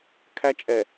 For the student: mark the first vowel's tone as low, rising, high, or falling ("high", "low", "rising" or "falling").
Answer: high